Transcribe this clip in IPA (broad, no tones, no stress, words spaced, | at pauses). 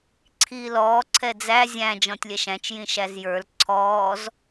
ǀʰiːlɔː ǀʰɛd͡zæ zʲæ̃ d͡ʒɔ̃tʲlʲɛʃæ̃t͡ʃ jĩʃæzjə˞l ǀʰɔːz